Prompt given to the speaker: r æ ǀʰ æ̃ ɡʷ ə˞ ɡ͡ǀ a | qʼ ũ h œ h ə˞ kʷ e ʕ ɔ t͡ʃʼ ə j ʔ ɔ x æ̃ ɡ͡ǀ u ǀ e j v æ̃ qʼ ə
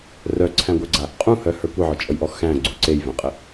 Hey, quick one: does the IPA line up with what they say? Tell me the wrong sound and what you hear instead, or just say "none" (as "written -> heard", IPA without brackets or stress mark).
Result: æ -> œ